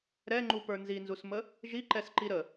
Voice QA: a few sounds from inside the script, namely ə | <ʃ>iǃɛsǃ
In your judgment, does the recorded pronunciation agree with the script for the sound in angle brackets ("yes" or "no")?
no